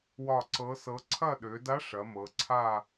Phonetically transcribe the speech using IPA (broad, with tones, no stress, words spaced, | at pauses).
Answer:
wɒ˦˨ǀɤ˧˥sɤ˧˥ ǀʰɐ˦˨ɗø˩˧da˧˥ ʂɐ˩˧mɤ˩˧ǀʰa˦˨